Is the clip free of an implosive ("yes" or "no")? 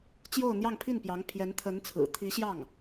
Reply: yes